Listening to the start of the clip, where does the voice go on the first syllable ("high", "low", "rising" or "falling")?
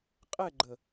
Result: falling